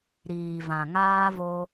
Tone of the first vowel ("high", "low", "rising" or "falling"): low